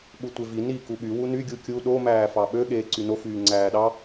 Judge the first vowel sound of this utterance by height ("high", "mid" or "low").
high